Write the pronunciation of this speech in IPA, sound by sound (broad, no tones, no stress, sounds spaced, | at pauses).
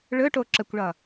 ɭ ɵ ʈ o ǁ ə kʷ ɭ ʌ